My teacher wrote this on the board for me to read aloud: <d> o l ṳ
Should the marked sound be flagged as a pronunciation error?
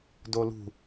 no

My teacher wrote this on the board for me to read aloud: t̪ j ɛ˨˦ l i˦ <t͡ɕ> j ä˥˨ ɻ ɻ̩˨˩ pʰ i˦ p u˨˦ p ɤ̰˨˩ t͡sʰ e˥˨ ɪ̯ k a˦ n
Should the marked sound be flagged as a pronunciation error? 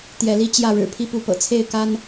no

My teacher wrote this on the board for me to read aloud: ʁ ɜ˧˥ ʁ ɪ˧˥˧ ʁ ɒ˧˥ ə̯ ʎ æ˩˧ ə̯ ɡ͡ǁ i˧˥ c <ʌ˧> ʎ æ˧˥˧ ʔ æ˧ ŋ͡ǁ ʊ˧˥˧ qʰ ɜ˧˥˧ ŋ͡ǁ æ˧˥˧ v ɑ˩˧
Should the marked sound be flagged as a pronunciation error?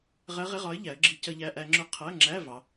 no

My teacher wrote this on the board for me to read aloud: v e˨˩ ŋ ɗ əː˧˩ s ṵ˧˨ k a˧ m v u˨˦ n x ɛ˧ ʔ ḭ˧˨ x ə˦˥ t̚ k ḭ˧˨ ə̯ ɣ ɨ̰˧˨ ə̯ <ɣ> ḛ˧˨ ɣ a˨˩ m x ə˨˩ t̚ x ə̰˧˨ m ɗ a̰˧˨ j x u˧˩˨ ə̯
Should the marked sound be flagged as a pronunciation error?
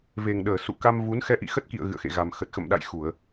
yes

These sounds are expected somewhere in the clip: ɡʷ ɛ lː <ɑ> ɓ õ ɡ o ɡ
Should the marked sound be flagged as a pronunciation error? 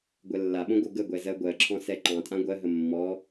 yes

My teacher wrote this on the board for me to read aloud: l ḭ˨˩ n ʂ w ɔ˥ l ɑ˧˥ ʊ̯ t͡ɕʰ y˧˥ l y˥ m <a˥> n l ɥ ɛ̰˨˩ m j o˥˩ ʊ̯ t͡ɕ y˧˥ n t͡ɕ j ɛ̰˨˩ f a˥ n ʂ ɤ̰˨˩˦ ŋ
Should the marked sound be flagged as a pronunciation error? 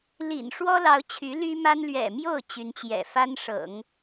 no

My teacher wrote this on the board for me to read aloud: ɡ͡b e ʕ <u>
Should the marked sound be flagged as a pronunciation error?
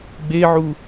no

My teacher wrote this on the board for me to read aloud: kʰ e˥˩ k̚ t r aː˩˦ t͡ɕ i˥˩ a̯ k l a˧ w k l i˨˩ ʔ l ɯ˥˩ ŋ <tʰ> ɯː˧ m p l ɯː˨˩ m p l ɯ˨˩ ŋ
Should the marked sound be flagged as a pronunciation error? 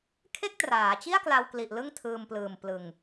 no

